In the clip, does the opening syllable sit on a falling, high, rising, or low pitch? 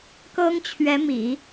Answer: high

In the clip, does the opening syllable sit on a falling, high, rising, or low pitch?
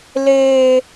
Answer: high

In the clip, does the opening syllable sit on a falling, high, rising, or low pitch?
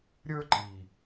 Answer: high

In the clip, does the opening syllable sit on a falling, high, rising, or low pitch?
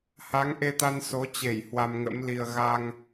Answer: rising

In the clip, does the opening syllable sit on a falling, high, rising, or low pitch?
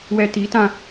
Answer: low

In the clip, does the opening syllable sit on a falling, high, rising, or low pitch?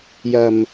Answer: low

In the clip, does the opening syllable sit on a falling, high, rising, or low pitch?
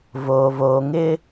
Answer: low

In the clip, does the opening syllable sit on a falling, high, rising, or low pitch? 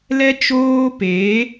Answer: high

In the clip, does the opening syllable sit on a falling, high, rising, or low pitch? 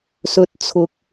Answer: low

